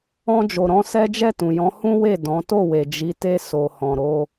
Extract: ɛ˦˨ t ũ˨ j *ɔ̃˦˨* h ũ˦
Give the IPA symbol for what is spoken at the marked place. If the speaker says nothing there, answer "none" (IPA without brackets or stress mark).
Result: ɔ̃˨˦